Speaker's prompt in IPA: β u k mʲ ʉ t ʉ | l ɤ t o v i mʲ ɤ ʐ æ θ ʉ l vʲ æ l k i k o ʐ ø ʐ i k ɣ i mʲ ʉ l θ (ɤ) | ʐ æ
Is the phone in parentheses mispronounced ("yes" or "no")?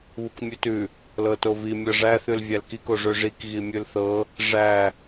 no